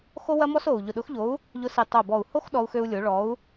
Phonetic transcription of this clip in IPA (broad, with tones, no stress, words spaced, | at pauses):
xo˦wɐ˦mɔ˦s o˨˩u̯ ʎʊ˨˩ɗʊ˨˥xʎo˨˥u̯ | ʎʊ˨˥si˨˩ tˤo˨˩bɔ˨˩u̯ho˦x ɗɔ˦u̯xø˦u̯lʲo˨˥ ɭɔ˨˥u̯